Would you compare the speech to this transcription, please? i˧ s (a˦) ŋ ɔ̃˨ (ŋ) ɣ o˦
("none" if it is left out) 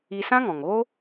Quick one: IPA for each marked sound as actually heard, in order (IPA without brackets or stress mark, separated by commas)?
ã˦, ŋ